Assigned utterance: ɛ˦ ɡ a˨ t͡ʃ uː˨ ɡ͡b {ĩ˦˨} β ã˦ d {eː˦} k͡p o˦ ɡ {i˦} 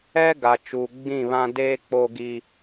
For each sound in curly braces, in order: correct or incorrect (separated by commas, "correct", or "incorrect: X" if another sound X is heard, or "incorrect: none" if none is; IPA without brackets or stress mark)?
correct, correct, correct